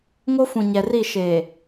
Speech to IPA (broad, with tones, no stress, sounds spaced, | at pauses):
ŋ o˦ f ũ˨ ɲ ɛ˨ r i˦˨ ʃ eː˨